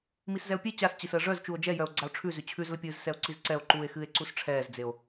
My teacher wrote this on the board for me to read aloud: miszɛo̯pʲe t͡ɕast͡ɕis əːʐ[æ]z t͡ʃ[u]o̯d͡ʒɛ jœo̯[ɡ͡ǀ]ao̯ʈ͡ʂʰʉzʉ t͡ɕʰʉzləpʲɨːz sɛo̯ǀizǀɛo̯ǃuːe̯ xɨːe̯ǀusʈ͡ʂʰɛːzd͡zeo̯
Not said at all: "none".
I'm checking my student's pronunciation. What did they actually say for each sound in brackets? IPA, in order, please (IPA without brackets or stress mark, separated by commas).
œ, u, ɡ͡ǀ